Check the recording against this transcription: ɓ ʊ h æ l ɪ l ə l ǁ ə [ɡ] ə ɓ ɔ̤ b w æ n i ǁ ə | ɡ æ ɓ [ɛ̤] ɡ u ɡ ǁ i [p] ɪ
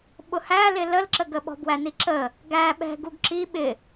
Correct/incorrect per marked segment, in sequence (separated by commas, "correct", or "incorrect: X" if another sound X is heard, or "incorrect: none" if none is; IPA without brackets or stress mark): correct, correct, incorrect: ɓ